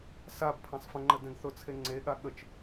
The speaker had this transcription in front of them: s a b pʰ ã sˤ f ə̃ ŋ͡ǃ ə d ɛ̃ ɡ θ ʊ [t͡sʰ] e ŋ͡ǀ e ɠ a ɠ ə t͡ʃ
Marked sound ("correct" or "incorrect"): correct